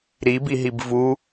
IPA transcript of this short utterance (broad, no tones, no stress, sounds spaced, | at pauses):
ɾ i b i ɦ i b v u